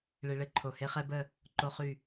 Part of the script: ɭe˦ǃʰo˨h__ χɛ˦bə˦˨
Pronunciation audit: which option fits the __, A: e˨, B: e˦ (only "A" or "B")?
B